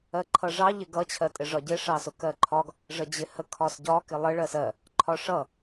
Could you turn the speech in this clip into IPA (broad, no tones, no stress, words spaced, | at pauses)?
ɜǃʰʌʐɑ ʎɪɡʌ t͡ɕʰɜtʼɪʐɒɟɪ ʂɑsʊkɜǃʰɒɡ | ʐəd͡ʑɪhə kʰɒsɟɒ kɪlˠə ɭɜsɜ | ǃʰɒʂʌ